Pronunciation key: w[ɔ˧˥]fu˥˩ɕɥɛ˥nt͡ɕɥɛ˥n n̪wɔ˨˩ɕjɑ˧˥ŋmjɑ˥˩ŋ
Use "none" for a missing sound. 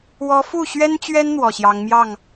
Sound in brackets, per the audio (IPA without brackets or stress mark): ɔ˧˥